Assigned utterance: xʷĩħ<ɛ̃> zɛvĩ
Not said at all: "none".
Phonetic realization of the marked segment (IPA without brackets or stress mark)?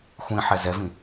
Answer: ɛ